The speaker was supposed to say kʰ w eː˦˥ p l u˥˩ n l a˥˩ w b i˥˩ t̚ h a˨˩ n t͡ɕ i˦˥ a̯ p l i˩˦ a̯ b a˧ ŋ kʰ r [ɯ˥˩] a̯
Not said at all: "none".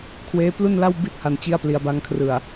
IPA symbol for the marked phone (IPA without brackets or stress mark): ɯ˨˩